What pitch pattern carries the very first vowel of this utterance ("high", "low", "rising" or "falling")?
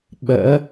rising